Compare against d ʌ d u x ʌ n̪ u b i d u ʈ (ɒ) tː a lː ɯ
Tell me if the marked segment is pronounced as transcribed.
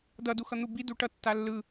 no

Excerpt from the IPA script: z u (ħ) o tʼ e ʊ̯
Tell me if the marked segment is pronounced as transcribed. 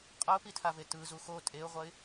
no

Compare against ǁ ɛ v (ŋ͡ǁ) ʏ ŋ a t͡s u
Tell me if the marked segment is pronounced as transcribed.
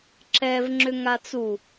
yes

